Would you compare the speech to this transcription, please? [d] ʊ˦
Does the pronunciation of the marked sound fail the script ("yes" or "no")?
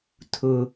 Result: yes